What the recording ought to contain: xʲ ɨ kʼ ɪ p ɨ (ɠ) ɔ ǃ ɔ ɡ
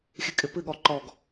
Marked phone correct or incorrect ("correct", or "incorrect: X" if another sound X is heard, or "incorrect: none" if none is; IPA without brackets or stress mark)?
correct